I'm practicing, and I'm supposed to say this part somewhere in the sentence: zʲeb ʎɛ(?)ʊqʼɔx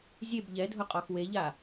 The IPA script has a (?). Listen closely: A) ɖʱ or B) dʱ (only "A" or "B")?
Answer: B